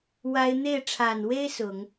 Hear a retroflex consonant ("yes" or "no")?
yes